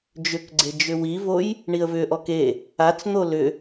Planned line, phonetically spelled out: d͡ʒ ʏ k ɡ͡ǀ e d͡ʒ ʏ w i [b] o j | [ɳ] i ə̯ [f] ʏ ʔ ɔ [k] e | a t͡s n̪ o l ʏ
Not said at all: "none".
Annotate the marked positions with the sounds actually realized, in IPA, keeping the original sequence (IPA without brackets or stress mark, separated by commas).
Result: v, ɳ, v, k